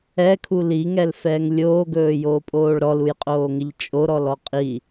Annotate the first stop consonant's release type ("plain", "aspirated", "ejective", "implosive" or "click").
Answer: aspirated